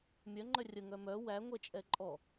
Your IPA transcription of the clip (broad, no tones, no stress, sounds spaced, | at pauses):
mʲ œ ŋ͡ǃ œ rʲ ə ŋ œ m œ w æ ŋʷ ɛ t͡ʃʼ ɛ ǃʼ ɔ